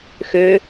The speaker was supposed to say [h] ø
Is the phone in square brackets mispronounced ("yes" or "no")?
yes